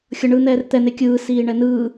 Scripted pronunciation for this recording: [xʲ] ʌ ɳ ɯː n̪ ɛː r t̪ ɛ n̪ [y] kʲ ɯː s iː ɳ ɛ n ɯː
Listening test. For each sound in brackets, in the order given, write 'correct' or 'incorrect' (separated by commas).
correct, incorrect